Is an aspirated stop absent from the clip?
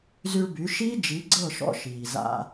yes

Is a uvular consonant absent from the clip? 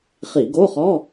no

